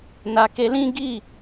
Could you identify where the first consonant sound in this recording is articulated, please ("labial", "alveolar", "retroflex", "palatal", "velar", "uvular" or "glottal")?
alveolar